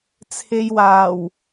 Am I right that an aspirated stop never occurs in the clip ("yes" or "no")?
no